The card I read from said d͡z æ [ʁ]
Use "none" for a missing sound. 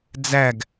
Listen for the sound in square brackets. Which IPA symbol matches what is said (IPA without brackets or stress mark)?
ɡ